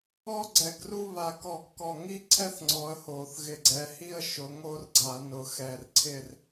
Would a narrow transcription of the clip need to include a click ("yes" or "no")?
yes